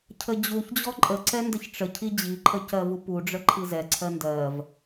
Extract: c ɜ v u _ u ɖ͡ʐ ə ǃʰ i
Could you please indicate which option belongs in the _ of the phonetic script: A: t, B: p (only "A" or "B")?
B